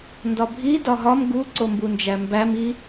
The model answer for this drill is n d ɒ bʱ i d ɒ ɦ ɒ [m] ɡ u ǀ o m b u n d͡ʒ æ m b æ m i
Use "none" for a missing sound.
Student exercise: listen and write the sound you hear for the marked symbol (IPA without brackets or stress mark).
m